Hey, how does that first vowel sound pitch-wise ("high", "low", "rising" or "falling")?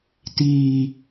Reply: low